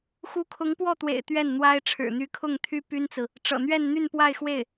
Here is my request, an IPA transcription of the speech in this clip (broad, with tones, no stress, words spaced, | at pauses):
xu˧˥kʰʊ˧˥ŋpwɔ˥˩t̪wḛ˨˩ɪ̯ t̪ɥɛ˥˩nn̪wa˥ɪ̯ ʈ͡ʂʰɻ̩˨˩n̪y˧˥kʰʊ˥˩ŋt̪ʰy˥ py˥nt͡sɹ̩˨ | ʈ͡ʂɤ̰˨˩n̪ɥɛ˥˧n n̪y˥˧npwa˥˧ɪ̯xwe˥˩ɪ̯